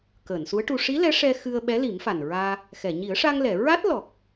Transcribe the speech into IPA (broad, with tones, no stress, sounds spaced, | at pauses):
k əː˨˩˨ n s u˧˥ ə̯ ʈ u˧ ʂ i˧˥ l ɛ˧˥ ʂ ɛ˧ x ɨ˧ ə̯ ɓ ɛ˧˥ l i˨˩˦ m f a˨˩ n ɹ aː˧ | x ɛ˨˩˨ ɲ i˨˩˦ ə̯ ʂ a˧ ŋ l ɛ˨˩˨ ɹ a˦˥ t̚ l ɔ˨˩ k̚